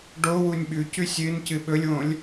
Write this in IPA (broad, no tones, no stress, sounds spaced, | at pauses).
ɖ o w u nʲ ɓ ʉ c ʉ sʲ ɨ n c ɨ ɓ ɵ lʲ w õ lʲ